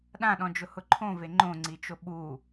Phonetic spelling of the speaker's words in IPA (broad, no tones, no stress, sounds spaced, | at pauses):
ɗ ã ɗ ɔ̃ d͡ʒ ʊ h ʊ ǃʰ õ v e ŋ͡ǃ õ ŋ͡ǀ i t͡ʃ o ɓ u